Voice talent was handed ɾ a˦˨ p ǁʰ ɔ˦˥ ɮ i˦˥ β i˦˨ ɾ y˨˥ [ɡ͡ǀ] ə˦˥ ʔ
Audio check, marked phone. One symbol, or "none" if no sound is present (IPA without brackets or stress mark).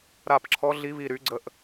ɡ͡ǀ